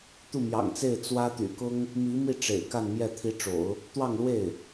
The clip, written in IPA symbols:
t̪u˥˩mjɑ̰˨˩ŋt͡se˥˩ɪ̯ t͡swä˥ t̪y̰˨˩kʊ˥ŋ | mi˧˥mi˥˩ ʈ͡ʂḛ˨˩ɪ̯ka˥˧nmjɛ˥˩ t̪ʰi˧˥ʈ͡ʂo̰˨˩˦ʊ̯ | t̪wɑ˥˧ŋlwe˥˩ɪ̯

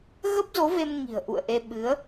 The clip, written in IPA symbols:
ɣə˦˥p̚zo˨˦ve˧mŋi̤˨˩ə̯ ʔṵ˧˨ə̯ʔe˧ ɓɨ˨˦ə̯

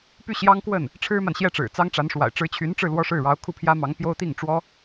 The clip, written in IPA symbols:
py˥˩ɕjɑ˥ŋkwə˥˩n | ʈ͡ʂʰɻ̩˥ma˨nɕjɛ˥˩ʈ͡ʂɻ̩˨˩ t͡sɑ˥ŋʈ͡ʂa˧˥nʂwa̰˨˩ɪ̯ ʈ͡ʂɻ̩˧˥t͡ɕʰy˧˥nʈ͡ʂɻ̩˧ lwɔ˥ʂɻ̩˥˩ ɻɑ˧˥ʊ̯kʰu˥˩pʰjä˥ mɑ˧˥ŋpjo˥ʊ̯t̪i˥˩ŋ ʈ͡ʂwɔ˥

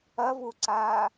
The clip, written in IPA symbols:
ɐvuǀaː

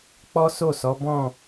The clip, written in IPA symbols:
k͡pɔ˦so˦˨sɔ˨˦ bɔ̃˦˨

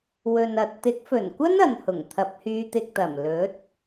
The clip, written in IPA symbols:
wɵ˨nɐ˨t̚ t̪ɪ˨˥k̚fɵ˨˩nkʷɐ˥n ɐ˨nhʊ˨˩ŋt̪ʰɐ˨˥p̚ hyː˧t̪ɪ˧k̚t̪ɐ˨˩m lɵ˨˥t̚

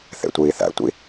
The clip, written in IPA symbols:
θḛtʷiːθæ̰tʷḭ

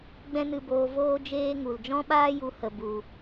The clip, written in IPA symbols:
ɡ͡bɛ̃˦nɨ˧boː˧ voː˦ d͡ʒeː˦ ŋu˨l d͡ʒɔ̃˦ɓaː˦ju˨˦ hə˨ bu˨

